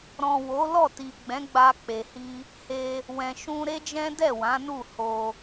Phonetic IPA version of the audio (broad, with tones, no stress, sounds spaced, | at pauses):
ɾ ɔ̃˨ w o˨˦ l ɔ˦˨ t i˨ ɡ͡b ɛ̃˨˦ ɡ͡b a˧ k͡p e˨ h i˧ | h e˧ | w ɛ̃˨ ʃ ũ˧ ɾ e˦ d͡ʒ ɛ̃˦ d ɛ˦˨ w ã˨˦ n u˦˨ h o˧